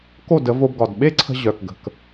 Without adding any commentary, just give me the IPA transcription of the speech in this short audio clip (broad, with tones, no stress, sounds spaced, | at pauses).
k o˥˩ d ə˩˥ v o˧ b ɡ ɒ˩ d ɓ e˥ ǀʰ ə̤˧ ʑ œ˩ k ɡ ə̤˩ k